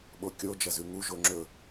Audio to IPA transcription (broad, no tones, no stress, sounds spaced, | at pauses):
ɓ o kʲ o d͡ʒ ɐ z ʉ ŋ u ʒ o ŋ͡ǁ ɵ